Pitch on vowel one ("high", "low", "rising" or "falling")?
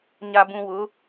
low